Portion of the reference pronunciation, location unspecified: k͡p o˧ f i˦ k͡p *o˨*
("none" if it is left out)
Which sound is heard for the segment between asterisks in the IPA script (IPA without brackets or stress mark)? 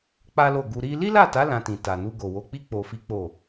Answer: o˦˨